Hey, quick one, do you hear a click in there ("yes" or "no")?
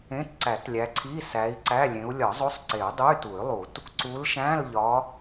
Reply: yes